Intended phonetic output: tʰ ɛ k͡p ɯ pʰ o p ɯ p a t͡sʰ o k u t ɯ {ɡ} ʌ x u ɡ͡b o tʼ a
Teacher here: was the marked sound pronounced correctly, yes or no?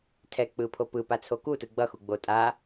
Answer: no